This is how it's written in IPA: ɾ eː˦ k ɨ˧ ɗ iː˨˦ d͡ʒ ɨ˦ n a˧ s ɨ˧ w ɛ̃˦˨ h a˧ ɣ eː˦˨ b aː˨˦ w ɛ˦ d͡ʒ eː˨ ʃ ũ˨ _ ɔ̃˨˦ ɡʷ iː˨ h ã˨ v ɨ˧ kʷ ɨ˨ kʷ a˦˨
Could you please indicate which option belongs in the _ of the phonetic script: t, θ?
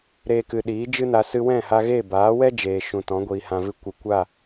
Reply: t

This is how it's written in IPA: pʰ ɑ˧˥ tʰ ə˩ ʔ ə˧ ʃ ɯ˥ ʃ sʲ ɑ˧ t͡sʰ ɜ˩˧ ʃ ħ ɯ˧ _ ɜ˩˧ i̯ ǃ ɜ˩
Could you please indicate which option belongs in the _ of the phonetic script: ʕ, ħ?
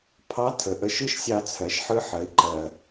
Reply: ħ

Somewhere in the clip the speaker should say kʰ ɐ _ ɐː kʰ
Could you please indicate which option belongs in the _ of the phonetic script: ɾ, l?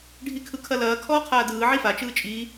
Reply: l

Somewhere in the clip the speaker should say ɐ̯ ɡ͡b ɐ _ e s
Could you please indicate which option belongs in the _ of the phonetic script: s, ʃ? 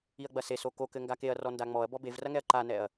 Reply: s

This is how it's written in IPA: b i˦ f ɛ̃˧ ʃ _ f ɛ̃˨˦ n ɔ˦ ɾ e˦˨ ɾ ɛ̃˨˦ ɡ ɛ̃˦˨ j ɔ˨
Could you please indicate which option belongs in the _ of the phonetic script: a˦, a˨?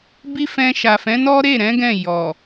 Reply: a˨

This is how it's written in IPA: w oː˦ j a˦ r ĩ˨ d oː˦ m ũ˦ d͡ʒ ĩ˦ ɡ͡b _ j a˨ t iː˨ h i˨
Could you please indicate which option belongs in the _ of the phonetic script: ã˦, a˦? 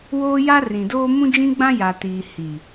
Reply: ã˦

